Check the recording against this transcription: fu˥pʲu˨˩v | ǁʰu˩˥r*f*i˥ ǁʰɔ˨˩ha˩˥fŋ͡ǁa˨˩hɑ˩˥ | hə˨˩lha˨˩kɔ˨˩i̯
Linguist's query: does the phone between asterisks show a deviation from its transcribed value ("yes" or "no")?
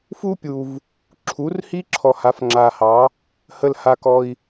yes